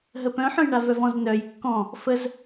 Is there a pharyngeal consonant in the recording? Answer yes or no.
yes